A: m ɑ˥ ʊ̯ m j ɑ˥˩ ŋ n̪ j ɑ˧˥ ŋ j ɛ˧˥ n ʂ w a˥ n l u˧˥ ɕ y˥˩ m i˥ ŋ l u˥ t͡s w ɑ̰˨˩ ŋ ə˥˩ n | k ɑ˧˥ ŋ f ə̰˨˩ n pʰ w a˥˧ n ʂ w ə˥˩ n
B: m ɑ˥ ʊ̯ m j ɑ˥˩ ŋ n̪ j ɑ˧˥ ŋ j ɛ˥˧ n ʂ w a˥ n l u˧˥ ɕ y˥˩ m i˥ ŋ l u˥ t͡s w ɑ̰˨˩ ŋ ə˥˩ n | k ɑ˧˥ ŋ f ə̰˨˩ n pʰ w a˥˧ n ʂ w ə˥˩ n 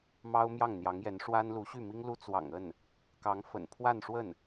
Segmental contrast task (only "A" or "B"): A